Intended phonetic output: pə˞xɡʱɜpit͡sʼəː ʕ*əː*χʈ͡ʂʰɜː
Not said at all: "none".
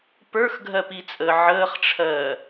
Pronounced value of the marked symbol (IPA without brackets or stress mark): əː